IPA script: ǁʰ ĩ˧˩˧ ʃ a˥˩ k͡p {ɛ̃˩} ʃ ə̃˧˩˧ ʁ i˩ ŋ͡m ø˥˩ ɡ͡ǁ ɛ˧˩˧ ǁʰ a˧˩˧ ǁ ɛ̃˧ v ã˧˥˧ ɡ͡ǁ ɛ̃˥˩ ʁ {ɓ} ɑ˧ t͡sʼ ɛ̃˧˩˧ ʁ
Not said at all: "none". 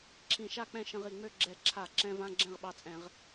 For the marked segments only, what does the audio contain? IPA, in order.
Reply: ɛ̃˥˩, ɓ

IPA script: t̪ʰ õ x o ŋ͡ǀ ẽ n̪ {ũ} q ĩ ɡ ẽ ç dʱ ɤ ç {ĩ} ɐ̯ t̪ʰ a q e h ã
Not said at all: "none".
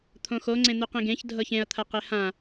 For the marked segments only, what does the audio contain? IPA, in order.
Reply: u, ẽ

